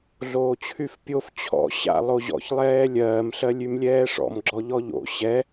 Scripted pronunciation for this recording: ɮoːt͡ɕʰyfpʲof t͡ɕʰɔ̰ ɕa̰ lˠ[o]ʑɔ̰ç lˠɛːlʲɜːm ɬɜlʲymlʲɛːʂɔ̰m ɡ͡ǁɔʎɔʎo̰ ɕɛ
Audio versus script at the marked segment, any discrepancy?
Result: no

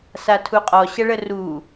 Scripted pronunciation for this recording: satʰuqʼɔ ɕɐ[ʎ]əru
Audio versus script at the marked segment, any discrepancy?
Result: yes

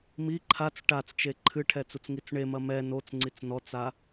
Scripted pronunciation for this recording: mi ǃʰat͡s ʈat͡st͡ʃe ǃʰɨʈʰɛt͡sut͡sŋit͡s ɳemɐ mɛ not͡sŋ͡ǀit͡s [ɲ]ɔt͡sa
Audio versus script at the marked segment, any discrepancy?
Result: yes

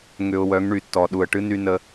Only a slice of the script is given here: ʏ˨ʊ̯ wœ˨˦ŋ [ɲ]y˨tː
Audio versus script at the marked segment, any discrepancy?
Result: yes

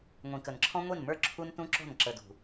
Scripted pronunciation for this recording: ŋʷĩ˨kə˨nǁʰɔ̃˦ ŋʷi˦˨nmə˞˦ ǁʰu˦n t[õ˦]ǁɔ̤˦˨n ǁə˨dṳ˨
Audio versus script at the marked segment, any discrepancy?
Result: yes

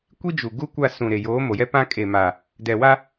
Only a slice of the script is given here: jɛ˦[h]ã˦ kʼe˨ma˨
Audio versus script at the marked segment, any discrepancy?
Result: yes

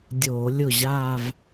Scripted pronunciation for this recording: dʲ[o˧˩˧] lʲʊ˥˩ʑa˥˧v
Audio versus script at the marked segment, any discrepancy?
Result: no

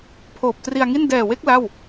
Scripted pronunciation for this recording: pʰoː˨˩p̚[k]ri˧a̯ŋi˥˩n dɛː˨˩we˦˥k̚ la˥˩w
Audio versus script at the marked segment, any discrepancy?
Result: yes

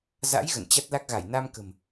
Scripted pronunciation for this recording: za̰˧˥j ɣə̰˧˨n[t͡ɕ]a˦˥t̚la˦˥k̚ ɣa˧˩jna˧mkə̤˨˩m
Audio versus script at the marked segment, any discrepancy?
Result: no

